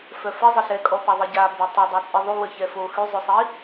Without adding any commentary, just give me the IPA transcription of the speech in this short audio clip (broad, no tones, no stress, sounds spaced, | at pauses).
f œ f ə zˤ ə ɬ ɛ kʼ ɔ p a ðˤ e ɟ a b ə tˤ o dˤ a t͡sʼ i ðˤ y w ə ç ɛ f o x y zˤ o sˤ i